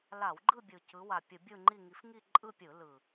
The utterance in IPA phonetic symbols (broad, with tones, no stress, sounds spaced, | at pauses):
l a˧˩˧ w ɡ͡ǃ ɯ˥˧ bʲ ɯ˨˩ c ɯ˨˦ w a˨˩ pʲ ɯ˧˩˧ bʲ ɯ˥˧ ŋ͡ǃ i˥˧ ŋ i˨˦ f ŋ i˥˧ ǃʼ ɯ˥˧ pʲ ɯ˧˩˧ l ɯ˨˩